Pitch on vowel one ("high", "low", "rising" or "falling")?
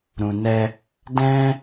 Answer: low